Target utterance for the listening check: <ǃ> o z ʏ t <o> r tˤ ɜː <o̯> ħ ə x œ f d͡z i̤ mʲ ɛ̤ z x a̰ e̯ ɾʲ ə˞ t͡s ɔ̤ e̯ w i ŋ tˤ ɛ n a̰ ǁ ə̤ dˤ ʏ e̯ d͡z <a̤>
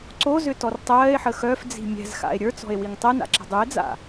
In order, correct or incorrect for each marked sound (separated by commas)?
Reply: incorrect, incorrect, incorrect, incorrect